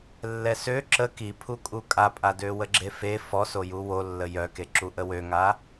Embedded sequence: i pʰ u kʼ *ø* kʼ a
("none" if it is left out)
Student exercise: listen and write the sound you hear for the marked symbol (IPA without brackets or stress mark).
u